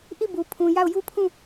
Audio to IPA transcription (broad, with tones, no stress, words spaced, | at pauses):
ʔi˦˨bu˨pʰũ˨ ja˦˨ʊ̯ju˦pʰũ˦˨